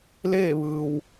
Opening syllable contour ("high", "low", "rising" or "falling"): falling